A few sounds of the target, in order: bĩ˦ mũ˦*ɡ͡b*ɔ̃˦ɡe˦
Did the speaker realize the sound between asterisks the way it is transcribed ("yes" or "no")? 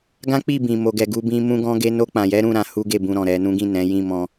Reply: no